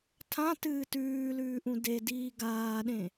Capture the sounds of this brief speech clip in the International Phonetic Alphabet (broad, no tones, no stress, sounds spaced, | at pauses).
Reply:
tʰ ã t ɨː t ʉː l ʉː ʔ ũ d e d iː ɡ aː ɗ ẽ